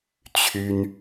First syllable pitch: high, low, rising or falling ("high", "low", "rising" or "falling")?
high